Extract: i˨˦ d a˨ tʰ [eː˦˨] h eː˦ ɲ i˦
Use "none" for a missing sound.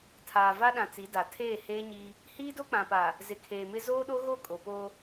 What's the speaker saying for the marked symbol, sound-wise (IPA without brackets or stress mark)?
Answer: eː˦˨